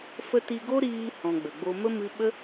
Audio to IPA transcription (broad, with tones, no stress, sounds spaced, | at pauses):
f ə˧ t i˧ ɡ o˦ ɾ iː˧ h ɔ̃˨ ɡ͡b ə˨ ɡ͡b o˧ m ə˦ m ɨ˦ ɓ ə˦